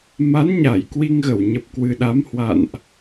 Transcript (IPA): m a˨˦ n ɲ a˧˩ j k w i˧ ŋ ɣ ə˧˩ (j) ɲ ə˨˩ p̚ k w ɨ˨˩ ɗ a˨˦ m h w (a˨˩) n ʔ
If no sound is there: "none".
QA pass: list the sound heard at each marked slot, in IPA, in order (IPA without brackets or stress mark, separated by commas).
w, a̰˧˨